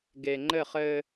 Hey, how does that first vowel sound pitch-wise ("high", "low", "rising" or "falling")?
low